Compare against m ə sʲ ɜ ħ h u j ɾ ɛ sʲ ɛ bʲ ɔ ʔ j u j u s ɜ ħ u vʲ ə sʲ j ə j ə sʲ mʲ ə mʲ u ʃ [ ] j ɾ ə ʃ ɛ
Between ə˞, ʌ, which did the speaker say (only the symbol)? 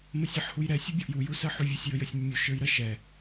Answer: ə˞